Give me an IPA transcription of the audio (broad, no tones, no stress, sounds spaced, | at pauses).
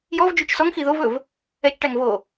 j ɔ v d͡ʒ u t͡ʃ s ɔ ŋ x i ð o v ɵ v | ɛ t͡ʃ ʈ æ ŋ v o